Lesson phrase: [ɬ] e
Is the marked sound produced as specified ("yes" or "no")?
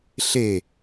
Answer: yes